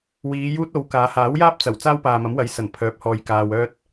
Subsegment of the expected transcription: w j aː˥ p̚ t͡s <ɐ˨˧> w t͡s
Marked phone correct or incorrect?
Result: incorrect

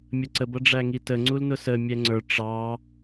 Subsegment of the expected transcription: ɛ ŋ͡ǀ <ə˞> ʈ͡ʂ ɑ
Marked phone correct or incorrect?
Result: correct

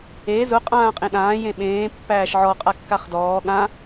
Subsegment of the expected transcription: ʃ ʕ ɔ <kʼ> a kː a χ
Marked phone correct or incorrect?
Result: incorrect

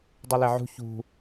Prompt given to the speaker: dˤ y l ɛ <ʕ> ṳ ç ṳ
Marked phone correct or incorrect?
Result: correct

